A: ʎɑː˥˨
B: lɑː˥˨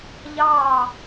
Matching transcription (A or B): A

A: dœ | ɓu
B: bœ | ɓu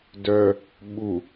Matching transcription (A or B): A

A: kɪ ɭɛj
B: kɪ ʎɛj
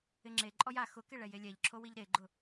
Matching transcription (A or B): A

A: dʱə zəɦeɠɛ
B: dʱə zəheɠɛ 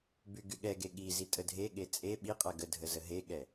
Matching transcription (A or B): A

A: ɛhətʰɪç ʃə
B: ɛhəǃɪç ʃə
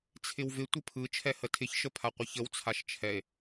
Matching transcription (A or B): A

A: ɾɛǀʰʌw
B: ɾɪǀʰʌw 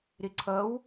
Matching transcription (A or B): B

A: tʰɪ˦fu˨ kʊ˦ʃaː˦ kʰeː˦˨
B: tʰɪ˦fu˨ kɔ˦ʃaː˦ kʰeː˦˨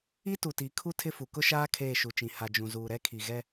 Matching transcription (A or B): A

